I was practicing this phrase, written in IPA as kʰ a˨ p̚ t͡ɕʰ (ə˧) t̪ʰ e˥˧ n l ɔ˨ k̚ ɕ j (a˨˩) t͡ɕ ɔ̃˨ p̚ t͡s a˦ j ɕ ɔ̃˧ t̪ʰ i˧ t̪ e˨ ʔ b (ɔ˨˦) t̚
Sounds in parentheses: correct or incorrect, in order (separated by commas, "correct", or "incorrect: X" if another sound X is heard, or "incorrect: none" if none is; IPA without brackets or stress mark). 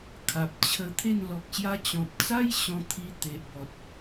correct, incorrect: a˧, incorrect: ɔ˨